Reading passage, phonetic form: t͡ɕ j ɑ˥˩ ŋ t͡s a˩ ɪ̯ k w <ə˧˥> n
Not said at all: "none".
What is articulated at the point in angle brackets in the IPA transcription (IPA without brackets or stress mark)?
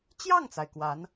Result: a˧˥